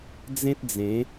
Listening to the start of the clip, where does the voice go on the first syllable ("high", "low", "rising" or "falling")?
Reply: high